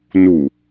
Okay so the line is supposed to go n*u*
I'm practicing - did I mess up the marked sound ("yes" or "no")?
no